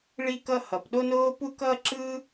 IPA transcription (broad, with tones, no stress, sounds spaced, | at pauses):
ɭ i˥ k ʌ˥ h ʌ˩ p ɗ o˥ n oː˥ p u˥ k ʌː˥ ǁ ɯ˥